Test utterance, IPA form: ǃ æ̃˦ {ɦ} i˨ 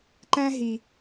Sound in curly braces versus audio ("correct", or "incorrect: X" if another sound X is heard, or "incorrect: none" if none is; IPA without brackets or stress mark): correct